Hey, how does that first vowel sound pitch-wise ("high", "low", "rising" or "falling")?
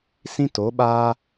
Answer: high